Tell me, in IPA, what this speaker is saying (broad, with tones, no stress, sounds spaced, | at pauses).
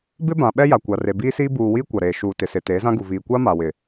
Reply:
b ɪ˦ b ã˨ ɓ ɛ˦ j a˨ kʷ a˨ r e˨ b iː˦ s iː˦ b uː˨ w iː˦ kʷ a˨ ɾ eː˨ ʃ uː˨ t ɪ˨ s ɪ˨ t eː˨˦ z ã˦ ɡ u˨ v iː˨ kʷ a˦ m a˨ w ɪ˨